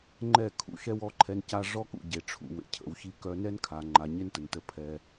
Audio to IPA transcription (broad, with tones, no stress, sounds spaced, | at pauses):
ŋ͡ǃ ɛ˦˨ kʰ ṵ˨ ʃ ɛ˦ w ɔ˦ ǃʰ ɛ˧ n c a˧ ʐ ɔ˦ k ṵ˨ ɟ e˨ ʈ͡ʂʰ ṵ˨ w ḛ˨ cʰ ə̰˨ w ç i˧ k œ˧ n ɛ˦ n kʰ a˨ ŋ͡ǃ a˨ ɲ e˦ n t ə˨ n t ə˧ pʰ ɛ˧